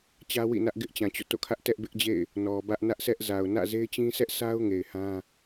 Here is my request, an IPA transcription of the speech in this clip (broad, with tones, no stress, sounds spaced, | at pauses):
t͡ɕ ä˦ w ḭ˦˨ n ä˦ ʔ ɡ ɪ˦ ʔ t͡ɕ ã˨ t͡ɕ o̰˦˨ t o̰˦˨ kʰ ä˦ ʔ t ɛ˦ ʔ b ɪ˦ ʔ d͡ʑ ḛ˦˨ ɪ̯ | n ɔ˨ b ä˦ ʔ n ä˦ ʔ sʰ ɛ˦ ʔ z a˨ ʊ̯ n ä̰˦˨ z e˦ ɪ̯ t͡ɕ ĩ˦ sʰ ɛ˦ ʔ sʰ a˦ ʊ̯ ŋ e˨ ɪ̯ h ã˦